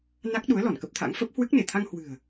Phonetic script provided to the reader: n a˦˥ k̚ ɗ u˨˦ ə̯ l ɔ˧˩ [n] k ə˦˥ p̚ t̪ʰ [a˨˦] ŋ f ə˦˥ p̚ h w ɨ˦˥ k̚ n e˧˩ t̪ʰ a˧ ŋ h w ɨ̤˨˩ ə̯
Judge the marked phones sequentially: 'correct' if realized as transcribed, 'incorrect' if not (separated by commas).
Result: correct, incorrect